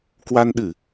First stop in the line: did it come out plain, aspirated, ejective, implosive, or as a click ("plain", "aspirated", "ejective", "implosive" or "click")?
plain